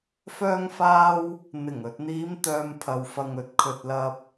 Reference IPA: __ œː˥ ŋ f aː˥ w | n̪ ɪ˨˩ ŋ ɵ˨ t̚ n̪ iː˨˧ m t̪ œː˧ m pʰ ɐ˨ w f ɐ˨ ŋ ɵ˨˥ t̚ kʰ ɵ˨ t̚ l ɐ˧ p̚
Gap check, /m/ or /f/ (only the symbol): f